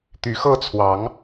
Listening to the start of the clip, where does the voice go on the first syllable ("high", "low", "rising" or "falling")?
rising